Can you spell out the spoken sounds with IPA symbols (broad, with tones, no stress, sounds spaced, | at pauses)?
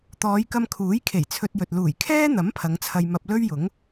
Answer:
t̪ ɔː˨˧ j k ɐ˧ m kʰ uː˨˥ j kʰ e˨˩ j t͡sʰ ɵ˧ t̚ j ɵ˨ t̚ l uː˨˩ j kʰ ɛː˥ n̪ ɐ˨˥ m pʰ ɐ˨˧ ŋ t͡sʰ ɐ˧ j m ɐ˧ p̚ l ɵ˥ ɥ j ʊ˨˥ ŋ